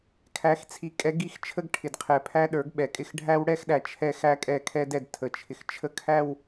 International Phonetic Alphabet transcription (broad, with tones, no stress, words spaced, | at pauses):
kʰæ˨˦xt͡sʰi˨ kʼɛ˨˦ɡi˨xt͡ʃʰə˦ɡ ʈʰɪ˨dqʰɛ˨ pʰæ˦ɗə˞˨˦ɡɓɛ˨kʼɪ˦˨x ɖʱæ˦wɽɛ˦xɗæ˨ t͡ʃʰɛ˦ xæ˦kʼɛ˦˨kʰɛ˦dɛ˨d tʰə˨t͡ʃʰɪ˨x t͡ʃʰə˦kʰæ˦˨w